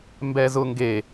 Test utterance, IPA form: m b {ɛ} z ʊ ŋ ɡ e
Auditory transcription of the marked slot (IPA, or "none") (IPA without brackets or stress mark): ɛ